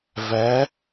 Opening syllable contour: rising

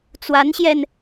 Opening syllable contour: rising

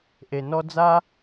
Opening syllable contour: low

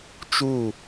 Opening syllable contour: falling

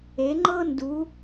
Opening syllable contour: rising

